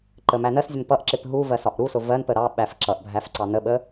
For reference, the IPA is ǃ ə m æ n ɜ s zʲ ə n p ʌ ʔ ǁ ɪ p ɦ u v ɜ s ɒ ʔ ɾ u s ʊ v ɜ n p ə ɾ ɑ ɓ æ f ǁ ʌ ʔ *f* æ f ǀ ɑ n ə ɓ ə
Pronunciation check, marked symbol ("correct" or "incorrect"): incorrect